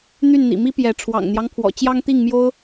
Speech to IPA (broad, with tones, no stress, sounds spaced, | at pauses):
n̪ y˥˨ n n̪ ḭ˨˩ m i˦ p j ɛ˨˦ ʈ͡ʂʰ w ɑ̰˨˩ ŋ n̪ j ɑ˦ ŋ pʰ w ɔ̰˨˩ t͡ɕ j ɑ˦ ŋ t̪ i˥˨ ŋ m j o˦ ʊ̯